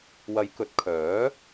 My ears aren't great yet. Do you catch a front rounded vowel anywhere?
yes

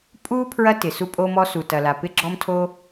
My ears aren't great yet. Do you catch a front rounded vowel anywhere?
no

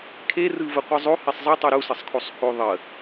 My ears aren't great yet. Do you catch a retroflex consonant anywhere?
no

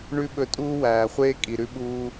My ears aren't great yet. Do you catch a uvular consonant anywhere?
yes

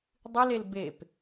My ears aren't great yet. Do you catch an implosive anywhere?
no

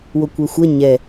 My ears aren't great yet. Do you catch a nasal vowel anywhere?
no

